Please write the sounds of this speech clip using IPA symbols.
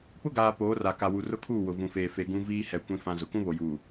p ʊ˦ ɡ aː˨ p oː˨˦ r a˨ k a˨ w u˨ r ʊ˦ kʰ uː˦˨ w ʊ˨ v ũ˨ f eː˨ f e˨ ɡ ũ˦ v iː˦ h ɛ˨ kʷ ĩ˦ f ã˦ z ʊ˨ k ũ˦ β o˨ j uː˨

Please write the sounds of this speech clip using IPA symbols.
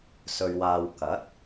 s ɵ˨ ɥ w aː˨ w k ɐ˨˥ t̚

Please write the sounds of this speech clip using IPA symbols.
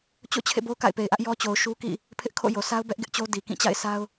t͡ɕ o̰˦˨ t͡ɕʰ ḛ˦˨ b o˦ ʊ̯ k a̰˦˨ ɪ̯ p e˨ ɪ̯ ʔ ä˦ ʔ j ɔ˦ t͡ɕ o˨ ʊ̯ ʃ u˦ k ḭ˦˨ | pʰ ɪ˦ ʔ kʰ o̰˦˨ j o˨ sʰ a˦ ʊ̯ b ɛ˦ ʔ ɡ ɪ˦ ʔ t͡ɕ o˦ d i˨ k ĩ˦˨ t͡ɕ a̰˦˨ ɪ̯ sʰ a˦ ʊ̯

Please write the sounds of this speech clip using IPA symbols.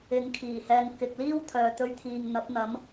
ɪ˨ ŋ kʰ iː˨˩ h ɛː˨ ŋ k ɪ˨ k̚ l iː˥ w t̪ʰ œː˨ t̪ ɵ˧ ɥ t̪ʰ iː˨ ŋ n̪ ɐ˨˥ p̚ n̪ ɐ˨˥ m

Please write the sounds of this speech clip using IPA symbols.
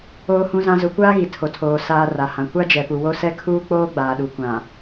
oː˨ h ũ˨ z ã˨ z ʊ˨ kʷ aː˦ ɣ i˨ tʰ o˨ tʰ oː˨ s aː˨ r a˨ h ã˨ kʷ a˦ d͡ʒ ɛ˨ p u˨ w o˦ s ɛ˦ kʰ uː˦ k͡p oː˦ ɡ͡b aː˨ ɗ u˨ kʷ ã˨

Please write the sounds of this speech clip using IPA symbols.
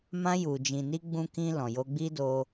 m ã˧ j u˨ d͡ʒ ĩ˨ n i˧ ɡ͡b ũ˧ k ĩ˧ l ɔ̃˨ j o˧ ɡ͡b i˦ d o˧

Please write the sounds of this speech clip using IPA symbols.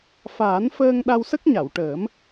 f aː˨˩˦ n f əː˧ ŋ ɗ a˧ w s ə˦˥ k̚ ɲ a˨˩˨ w ʈ əː˨˩˦ m

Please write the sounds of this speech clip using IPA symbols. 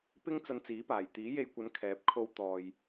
p ɪ˥ ŋ t͡s ɐ˧ n t͡s iː˨˥ p aː˨˩ j t̪ iː˨˥ j e˧ j kʷ ɐ˨˧ n kʰ ɛː˨˥ p̚ kʰ o˧ w t̪ ɔː˨ j

